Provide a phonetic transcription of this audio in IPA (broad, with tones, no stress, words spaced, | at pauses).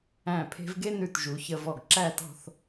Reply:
æ̃˧˩pʰe̤˧v ɡe˥˧nʉ˧˩tʒu˩˧ çə˧vɔ˧˩ɡ ǁæ˥˧tɔ̤˥˧θ